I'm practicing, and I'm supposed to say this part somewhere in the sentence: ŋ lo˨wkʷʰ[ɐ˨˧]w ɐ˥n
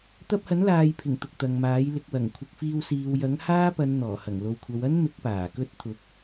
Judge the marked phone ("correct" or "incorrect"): correct